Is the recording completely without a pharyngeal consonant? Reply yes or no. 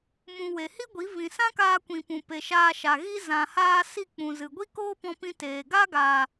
yes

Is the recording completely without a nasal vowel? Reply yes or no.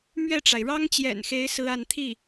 yes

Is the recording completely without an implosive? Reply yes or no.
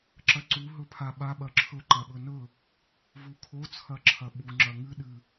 no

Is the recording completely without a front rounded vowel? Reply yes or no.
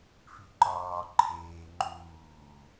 yes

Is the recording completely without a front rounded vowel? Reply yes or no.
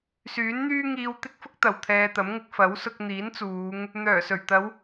no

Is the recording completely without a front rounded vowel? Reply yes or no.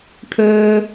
no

